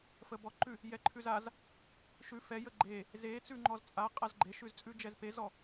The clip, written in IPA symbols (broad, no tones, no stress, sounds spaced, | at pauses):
f ə b ɔ ǃ ʉ | j ɛ ǃʰ ʉ z a z | ʃ ʉ f ɛ j ə ɡ͡ǃ e | z e t͡s ʉ ŋ͡ǃ ɔ z t͡sʼ a qʼ a z ɡ͡ǃ e ʃ ʉ z t͡sʼ ʉ d͡ʒ ɛ z p e z ɔ